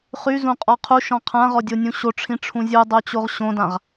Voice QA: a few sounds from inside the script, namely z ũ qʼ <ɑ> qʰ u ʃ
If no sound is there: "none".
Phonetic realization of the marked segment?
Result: ɔ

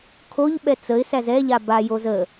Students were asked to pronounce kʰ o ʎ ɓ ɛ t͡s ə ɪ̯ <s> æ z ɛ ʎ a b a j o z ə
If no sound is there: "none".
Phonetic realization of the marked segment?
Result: s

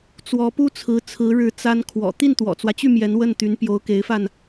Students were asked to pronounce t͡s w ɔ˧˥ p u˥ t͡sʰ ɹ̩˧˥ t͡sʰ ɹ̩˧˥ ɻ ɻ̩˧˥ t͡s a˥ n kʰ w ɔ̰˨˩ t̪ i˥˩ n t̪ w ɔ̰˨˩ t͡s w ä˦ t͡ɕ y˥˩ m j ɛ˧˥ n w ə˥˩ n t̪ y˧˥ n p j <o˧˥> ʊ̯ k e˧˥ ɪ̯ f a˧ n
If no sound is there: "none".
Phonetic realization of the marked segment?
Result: o˧˥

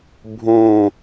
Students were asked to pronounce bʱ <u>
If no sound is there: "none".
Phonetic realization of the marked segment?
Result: ũ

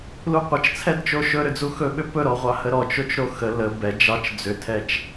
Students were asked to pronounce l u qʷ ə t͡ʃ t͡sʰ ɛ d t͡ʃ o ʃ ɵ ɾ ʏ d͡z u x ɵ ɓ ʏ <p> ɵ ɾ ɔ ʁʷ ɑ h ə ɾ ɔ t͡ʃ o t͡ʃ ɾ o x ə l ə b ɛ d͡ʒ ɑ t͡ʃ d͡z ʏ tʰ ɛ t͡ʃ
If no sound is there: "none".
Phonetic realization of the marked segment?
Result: p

